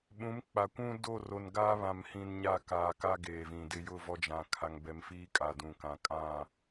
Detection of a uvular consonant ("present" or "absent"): absent